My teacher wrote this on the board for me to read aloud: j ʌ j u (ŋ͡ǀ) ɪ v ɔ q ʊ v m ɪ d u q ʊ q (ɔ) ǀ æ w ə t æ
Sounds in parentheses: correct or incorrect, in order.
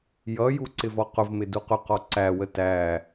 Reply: incorrect, correct

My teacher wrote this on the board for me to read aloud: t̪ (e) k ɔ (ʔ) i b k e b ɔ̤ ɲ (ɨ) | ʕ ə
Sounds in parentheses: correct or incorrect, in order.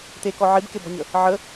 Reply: correct, incorrect, incorrect

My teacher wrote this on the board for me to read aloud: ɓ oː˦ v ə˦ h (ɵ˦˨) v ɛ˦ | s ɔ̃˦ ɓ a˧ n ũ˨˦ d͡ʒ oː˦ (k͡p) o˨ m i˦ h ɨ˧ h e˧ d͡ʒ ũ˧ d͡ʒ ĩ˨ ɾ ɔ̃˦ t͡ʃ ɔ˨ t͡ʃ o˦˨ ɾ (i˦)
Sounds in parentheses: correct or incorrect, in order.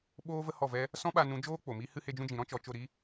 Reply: incorrect, correct, correct

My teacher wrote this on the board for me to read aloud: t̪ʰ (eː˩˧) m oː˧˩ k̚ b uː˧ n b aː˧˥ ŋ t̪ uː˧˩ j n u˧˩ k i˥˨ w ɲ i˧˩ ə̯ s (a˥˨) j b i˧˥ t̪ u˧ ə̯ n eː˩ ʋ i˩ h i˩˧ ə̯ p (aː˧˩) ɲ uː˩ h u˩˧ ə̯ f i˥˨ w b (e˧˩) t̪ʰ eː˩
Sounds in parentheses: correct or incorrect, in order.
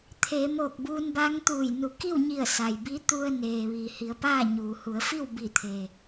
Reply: correct, incorrect, incorrect, incorrect

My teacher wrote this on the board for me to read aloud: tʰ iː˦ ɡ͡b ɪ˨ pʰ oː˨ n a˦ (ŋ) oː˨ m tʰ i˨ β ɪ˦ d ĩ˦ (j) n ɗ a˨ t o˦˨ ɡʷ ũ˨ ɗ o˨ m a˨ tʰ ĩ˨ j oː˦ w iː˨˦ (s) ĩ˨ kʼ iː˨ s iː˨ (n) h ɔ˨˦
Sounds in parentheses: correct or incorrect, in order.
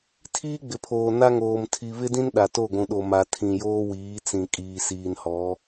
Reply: correct, incorrect, incorrect, correct

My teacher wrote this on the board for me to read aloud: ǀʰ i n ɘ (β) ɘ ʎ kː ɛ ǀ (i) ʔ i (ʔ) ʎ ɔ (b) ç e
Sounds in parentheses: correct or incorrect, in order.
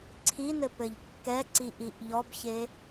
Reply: incorrect, correct, correct, correct

